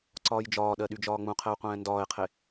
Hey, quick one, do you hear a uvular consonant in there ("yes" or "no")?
yes